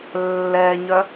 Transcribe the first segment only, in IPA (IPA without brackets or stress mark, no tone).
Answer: lː